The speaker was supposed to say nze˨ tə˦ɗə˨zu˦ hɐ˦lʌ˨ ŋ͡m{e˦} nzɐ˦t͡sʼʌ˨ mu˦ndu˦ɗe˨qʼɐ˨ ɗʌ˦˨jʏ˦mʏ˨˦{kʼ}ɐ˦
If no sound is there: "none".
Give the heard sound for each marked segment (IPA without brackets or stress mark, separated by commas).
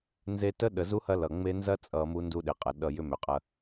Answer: e˦, qʼ